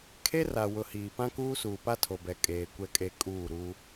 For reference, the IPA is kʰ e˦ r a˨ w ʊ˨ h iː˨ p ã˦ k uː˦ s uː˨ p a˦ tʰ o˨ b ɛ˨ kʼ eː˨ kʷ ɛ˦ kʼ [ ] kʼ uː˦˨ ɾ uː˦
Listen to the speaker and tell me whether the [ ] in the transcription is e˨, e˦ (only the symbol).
e˦